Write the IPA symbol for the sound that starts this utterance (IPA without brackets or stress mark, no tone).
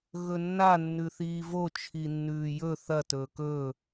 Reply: ɣ